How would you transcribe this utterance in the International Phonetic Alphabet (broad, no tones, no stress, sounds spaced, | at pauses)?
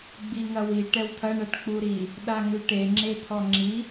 ɡ͡b i ŋ ɐ w i ʈ ɛ w t̪ʰ ɐ ɳ ɐ ʈ k͡p u ɾ i | ɗ a ŋ ʉ ʈ e ŋ͡ǁ e t̪ʰ ɔ ŋ͡ǁ i